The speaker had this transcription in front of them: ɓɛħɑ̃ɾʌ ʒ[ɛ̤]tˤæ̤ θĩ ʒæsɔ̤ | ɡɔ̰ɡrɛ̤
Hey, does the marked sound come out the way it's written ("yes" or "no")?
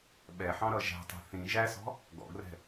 no